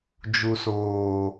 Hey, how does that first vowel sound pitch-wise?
low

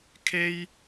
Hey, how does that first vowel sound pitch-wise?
high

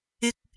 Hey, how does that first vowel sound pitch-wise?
high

